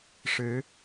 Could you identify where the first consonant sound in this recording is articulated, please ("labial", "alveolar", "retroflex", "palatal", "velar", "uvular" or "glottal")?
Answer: retroflex